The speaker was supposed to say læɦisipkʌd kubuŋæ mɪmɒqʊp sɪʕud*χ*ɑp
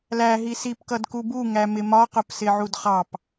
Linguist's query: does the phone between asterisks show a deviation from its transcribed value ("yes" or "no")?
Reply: no